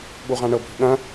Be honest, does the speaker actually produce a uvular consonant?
yes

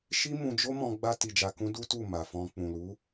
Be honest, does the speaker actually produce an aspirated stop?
no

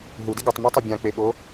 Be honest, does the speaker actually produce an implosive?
yes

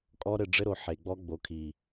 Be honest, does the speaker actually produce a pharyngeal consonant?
yes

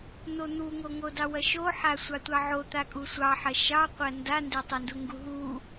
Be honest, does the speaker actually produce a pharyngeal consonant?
yes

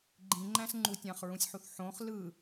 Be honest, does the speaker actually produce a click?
yes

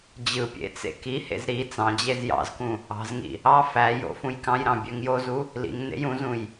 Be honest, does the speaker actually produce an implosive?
no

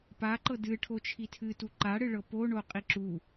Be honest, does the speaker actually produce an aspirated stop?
yes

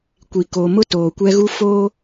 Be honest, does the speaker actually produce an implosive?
no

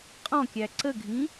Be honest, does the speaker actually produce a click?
yes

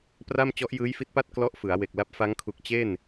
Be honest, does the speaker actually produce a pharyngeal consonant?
no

